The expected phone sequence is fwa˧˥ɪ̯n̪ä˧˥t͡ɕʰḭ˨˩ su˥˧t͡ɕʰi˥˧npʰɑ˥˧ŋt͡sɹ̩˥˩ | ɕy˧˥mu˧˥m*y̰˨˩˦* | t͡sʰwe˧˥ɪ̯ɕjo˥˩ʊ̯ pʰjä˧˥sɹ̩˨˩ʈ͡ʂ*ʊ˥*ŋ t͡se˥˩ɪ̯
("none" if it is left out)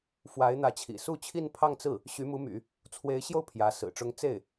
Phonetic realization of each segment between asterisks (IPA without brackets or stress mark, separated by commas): y̰˨˩˦, ʊ˥